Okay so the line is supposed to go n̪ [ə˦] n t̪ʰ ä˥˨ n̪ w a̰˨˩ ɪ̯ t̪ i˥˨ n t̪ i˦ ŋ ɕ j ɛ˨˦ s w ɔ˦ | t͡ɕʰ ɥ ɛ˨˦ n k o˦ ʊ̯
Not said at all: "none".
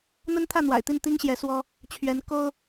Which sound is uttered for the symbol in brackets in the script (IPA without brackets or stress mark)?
ə˦